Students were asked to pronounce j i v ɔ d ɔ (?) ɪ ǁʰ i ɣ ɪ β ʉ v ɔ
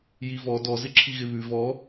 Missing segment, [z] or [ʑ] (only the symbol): z